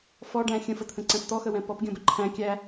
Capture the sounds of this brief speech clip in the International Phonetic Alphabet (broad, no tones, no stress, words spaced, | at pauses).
fɔɖæ̃ xʲə̃fət̪ʰə̃ǀɛ̃p t̪ɔxəwɛ̃ pɔpɡʲɔ̃bə ǃʰæ̃ kʲæ